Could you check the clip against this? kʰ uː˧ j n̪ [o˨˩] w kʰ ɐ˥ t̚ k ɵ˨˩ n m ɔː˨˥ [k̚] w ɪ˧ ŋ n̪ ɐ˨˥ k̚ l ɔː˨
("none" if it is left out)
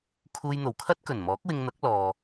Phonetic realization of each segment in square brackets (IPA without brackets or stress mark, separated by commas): o˨˩, k̚